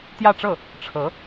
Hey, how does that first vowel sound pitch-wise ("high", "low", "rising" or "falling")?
falling